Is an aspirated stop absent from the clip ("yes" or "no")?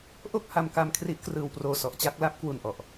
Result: no